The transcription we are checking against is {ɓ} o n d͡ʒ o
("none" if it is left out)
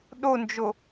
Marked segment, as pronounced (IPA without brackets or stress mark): ɗ